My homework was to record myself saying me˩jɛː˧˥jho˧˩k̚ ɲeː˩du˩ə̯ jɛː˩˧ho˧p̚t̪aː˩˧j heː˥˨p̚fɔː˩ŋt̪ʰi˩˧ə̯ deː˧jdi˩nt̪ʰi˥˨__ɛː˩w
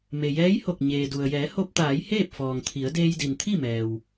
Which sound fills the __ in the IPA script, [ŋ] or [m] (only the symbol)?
m